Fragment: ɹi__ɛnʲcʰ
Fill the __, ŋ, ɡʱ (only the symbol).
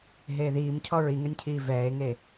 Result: ŋ